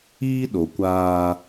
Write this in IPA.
iː˦ ɗ o˨ kʷ aː˦

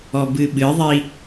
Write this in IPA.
ɔ b ɨ ɓ ɨ ðˤ i

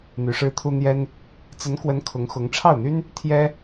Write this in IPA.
n̪ y˧˥ ʂ ɻ̩˥ t̪ʰ u˥ n̪ j ɛ˥ n | t͡s ə˧˥ n k w ə˧˥ n kʰ ʊ˧˥ ŋ x ʊ˧˥ ŋ ʈ͡ʂʰ ɑ˥˩ ʊ̯ n̪ y˥ n | t̪ʰ j ɛ˥

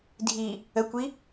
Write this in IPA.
dʱ i | ə kʷ i

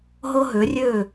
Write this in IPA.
ɦ ɤ˧ ɦ ø˩˧ rʲ øː˧˩

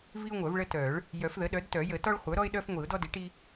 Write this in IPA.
v i˦ ʊ̯ ŋʷ œ˨˩˦ v ɭ ə˦ t œ˨˩˦ ɭ | j œ˨˩˦ f ð ə˩˥ ɗ œ˩˥ d t œ˨˩˦ j ə˨˩˦ t ɔ˦ ɭ χʷ œ˩˥ ɾ ɔ˦ ɪ̯ ɗ œ˦ f ŋʷ i˨˩˦ ʊ̯ d ɔ˦ d i˩˥ ʈ i˦

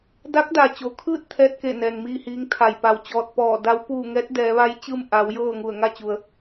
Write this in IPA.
d a˧˥ k̚ d a˩ t͡ɕ o˩˧ kʰ ɯː˥˨ t̚ t̪ʰ ɛː˧ t̚ k e˧˩ n ɛː˩ ŋ m iː˥˨ h iː˧˥ ŋ t̪ʰ a˧˩ j p a˧˩ w t͡ɕ ɔː˧ t̚ p ɔː˧˩ d a˧˥ w p uː˥˨ ŋ ɛː˧˥ t̚ d ɛː˩˧ ʋ a˧˥ j t͡ɕ ɯː˥˨ m ʔ a˩˧ w j ɤː˥˨ ŋ u˧˩ ə̯ ŋ a˥˨ t͡ɕ u˩ ə̯

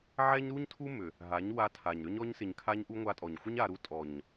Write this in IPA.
ʕ ɛ˦ ɲ ɾ u˦ ɲ tʰ u˦ m ʏ˨ | ɦ a˨˦ ɲ w a˧ tʰ a˨ ɲ ɾ ʏ˦ ɲ ɔ˧ ɲ s ɪ˨ ɲ kʰ a˧ ɲ ʔ u˧ ŋʷ a˧ tʼ ɔ˨ ɲ xʷ ɪ˦ ɲ a˧ ɾ u˧ tʼ ɔ˨ ɲ

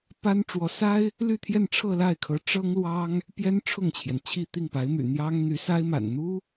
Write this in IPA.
p a˥ n ʈ͡ʂ w ɔ˧˥ s a˥ ɪ̯ | l y˥˧ t̪ʰ j ɛ˥˧ n ʈ͡ʂʰ ɤ˥˧ l a˥˩ ɪ̯ kʰ ɤ˧˥ ʈ͡ʂ ɤ˥ ŋ l w ɑ˥ ŋ | p j ɛ˥ n ʈ͡ʂʰ ʊ˥˩ ŋ t͡ɕʰ j ɛ˩ n t͡ɕʰ i˥˧ t̪ i˥˩ ŋ p a˧˥ ɪ̯ m y̰˨˩ n̪ j ɑ˥ ŋ n̪ y˧˥ s a˥ ɪ̯ m a̰˨˩ n n̪ u˥

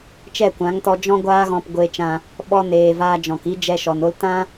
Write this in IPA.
t͡ʃ ɛ˦˨ kʷ ã˨˦ ŋ t ɔ˧ d͡ʒ ɔ̃˧ ɡʷ aː˦ ɣ ɔ̃˧ p ɡʷ e˧ t͡ʃ ã˧ | ɓ ɔ˧ n eː˨ v aː˧ d͡ʒ ɔ̃˨ k i˦ d͡ʒ ɛ˧ ʃ ɔ˨ n o˦ l t ã˦

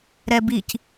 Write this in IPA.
ɾ ɛ b i c

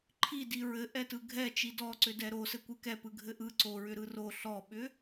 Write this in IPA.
ǃʰ i d i ɹ ɘ ʔ ɛ t ɯ ɡʱ ɛ t͡ʃ i d ɔ ǀ ʏ d ɛ ɾ o s ɘ kʷ ɯ k ɛ p ɯ ɡʱ ɘ ʔ ɯ ǀ o ɹ ʏ ɾ ɯ r o ɬ ɔ ɓ ʏ

